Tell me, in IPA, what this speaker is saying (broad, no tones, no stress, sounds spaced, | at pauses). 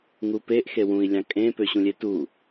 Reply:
ŋ u p e ʔ x e w ũ i̯ lʲ ɑ̃ kʼ ẽ p ø ɕ ũ lʲ e t u